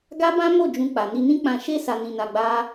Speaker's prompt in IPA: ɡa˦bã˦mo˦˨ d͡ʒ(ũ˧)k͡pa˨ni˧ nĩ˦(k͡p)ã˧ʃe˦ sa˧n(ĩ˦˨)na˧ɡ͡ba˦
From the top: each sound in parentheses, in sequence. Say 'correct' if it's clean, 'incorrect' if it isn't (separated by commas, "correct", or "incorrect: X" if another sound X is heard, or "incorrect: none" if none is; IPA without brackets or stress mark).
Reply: correct, correct, incorrect: ĩ˧